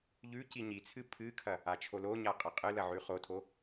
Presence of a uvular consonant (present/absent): present